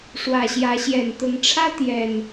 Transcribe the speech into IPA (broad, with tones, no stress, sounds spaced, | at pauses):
ʂ w ä˨˩ ɕ j ä˨˦ ɕ j ɛ˨˩ n t̪ ʊ˨˦ ŋ ʈ͡ʂʰ ä˦ t̪ j ɛ˨˩ n